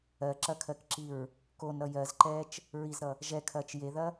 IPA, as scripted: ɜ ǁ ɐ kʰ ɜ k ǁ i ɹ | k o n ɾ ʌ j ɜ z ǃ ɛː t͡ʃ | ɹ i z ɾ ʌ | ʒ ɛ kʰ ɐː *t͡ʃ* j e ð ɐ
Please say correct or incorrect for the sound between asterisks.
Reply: correct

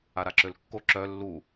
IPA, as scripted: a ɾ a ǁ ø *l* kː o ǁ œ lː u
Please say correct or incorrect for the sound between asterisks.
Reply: correct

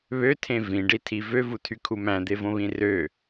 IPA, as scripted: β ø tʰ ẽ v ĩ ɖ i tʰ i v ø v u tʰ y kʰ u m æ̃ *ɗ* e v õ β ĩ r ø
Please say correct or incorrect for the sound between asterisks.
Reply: incorrect: d̪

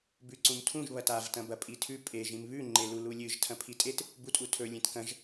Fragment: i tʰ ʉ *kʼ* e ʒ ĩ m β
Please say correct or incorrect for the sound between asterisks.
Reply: incorrect: pʼ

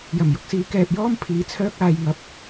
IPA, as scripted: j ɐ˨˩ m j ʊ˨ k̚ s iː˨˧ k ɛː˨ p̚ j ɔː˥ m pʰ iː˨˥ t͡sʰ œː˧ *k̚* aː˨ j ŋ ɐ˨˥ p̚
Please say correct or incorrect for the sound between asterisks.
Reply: correct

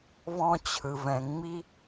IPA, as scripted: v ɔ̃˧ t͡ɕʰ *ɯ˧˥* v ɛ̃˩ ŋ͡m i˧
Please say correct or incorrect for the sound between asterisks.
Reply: incorrect: ɯ˩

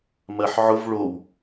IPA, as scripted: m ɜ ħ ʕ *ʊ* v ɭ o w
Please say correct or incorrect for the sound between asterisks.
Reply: correct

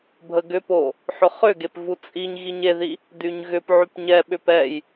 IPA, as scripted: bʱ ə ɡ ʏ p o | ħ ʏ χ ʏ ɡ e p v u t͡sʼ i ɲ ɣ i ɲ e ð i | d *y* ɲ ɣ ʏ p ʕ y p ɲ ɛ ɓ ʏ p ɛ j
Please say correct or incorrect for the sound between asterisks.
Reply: correct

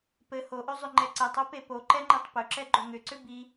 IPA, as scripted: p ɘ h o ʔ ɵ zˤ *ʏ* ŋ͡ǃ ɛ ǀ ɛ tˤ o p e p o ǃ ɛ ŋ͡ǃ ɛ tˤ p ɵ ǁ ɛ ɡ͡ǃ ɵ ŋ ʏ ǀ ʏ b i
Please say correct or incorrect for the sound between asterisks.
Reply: correct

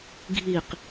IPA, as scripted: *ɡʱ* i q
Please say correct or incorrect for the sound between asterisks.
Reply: correct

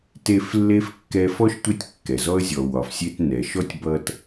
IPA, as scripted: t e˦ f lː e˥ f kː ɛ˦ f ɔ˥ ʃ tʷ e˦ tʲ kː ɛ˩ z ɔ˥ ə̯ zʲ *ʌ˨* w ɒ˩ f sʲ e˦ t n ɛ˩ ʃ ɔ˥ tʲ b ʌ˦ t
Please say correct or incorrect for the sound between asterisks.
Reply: incorrect: ɔ˨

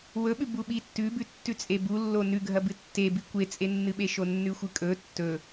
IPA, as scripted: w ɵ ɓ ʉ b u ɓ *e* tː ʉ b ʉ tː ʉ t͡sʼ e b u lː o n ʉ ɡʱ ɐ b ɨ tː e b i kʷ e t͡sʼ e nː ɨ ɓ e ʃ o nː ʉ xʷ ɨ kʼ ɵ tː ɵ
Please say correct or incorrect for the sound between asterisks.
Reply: incorrect: i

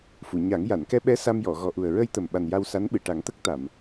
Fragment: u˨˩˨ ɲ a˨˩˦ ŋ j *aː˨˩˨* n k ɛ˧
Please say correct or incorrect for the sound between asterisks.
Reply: incorrect: a˨˩˨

